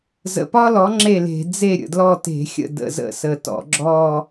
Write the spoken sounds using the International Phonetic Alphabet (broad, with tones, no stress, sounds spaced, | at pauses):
z ə̰˨˩ p ɒ˥ l ɔ˩˥ ŋ͡ǁ e˥˩ l e̤˧˩˧ d͡z e˥˩ ɾʲ ə̰˨˩ d l ɔ˥˩ t e̤˧˩˧ xʲ ə̰˥˩ d ə̰˧˩˧ z ə̰˧˩˧ s ə˨˩ t ɔ̰˧˩˧ ɡ͡ǁ ɔ˥˧